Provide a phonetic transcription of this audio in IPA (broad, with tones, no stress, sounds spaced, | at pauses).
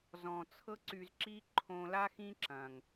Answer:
z ɔ̃˨ t͡sʰ ɤ˦ ǀ y˧ z ǁ i˦ ǃʰ õ˧ l a˦ x ĩ˦ ǁ ɐ̃˨ ŋ